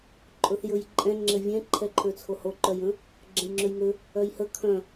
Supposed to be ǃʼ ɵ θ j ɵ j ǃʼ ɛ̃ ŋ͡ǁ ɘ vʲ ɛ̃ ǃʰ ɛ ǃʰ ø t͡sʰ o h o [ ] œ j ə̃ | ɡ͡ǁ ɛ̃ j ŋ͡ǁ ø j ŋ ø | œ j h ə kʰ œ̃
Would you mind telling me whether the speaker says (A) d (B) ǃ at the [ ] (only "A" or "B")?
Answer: B